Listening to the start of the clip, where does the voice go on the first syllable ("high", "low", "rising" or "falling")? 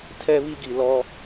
high